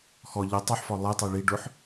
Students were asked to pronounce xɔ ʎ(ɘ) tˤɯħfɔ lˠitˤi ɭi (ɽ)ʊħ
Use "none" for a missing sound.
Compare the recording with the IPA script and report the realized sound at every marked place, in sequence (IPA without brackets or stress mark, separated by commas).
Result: ɘ, ɖ